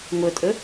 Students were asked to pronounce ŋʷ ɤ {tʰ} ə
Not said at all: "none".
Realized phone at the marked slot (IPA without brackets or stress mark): tʼ